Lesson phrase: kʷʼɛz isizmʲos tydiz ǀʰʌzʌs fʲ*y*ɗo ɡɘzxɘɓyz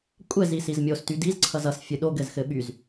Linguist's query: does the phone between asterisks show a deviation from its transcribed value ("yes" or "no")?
yes